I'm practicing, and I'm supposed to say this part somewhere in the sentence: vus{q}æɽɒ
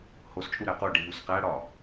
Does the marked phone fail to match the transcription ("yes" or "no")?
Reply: no